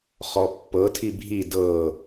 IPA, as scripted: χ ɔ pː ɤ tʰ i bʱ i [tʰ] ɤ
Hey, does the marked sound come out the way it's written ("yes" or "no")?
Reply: no